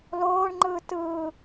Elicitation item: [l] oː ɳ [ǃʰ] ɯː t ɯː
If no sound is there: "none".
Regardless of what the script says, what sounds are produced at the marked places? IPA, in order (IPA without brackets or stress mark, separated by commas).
l, ŋ͡ǃ